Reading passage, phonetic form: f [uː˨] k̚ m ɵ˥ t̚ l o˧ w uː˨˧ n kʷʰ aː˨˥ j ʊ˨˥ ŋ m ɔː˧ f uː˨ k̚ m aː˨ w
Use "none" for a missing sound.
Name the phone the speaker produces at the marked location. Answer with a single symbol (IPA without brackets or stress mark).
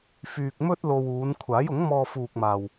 yː˨